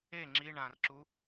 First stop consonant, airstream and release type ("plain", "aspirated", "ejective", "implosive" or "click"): click